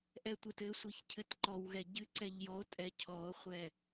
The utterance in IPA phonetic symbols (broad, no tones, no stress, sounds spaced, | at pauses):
ʔ ɛ tʷ ɨ t ɘ sʷ i ç cʰ ɘ t ǃ ɔ w ɣ ɛ ɟ ɨ ǀ ɛ ʎ j ɔ o̯ tʼ ɛ cʰ ɔ o̯ χʷ ɛ